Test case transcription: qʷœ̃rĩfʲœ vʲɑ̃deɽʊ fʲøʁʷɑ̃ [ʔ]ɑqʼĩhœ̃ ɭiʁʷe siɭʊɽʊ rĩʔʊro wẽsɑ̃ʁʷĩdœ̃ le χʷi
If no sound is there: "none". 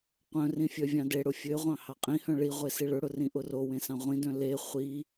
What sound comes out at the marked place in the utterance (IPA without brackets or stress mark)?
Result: h